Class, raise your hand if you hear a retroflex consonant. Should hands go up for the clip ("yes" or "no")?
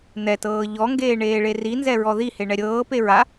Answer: yes